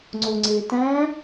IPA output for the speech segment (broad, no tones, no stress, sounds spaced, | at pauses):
ŋ͡ǀ o ŋ͡ǀ e t æ̃